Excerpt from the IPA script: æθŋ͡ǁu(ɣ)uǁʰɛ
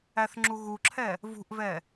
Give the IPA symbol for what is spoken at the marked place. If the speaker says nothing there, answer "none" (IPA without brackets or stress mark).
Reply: ɣ